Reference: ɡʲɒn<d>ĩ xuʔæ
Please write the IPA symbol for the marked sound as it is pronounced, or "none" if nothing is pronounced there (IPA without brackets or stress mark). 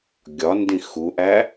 d